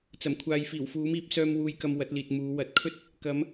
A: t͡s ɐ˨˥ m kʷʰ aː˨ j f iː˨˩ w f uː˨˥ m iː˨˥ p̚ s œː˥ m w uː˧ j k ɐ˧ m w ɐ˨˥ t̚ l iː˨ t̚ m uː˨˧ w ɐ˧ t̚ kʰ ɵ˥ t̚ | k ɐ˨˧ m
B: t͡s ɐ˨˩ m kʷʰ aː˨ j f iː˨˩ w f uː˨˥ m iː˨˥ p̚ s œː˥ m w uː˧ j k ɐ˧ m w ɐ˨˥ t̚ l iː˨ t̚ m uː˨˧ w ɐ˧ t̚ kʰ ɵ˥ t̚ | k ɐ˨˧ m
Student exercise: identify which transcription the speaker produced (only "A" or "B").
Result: B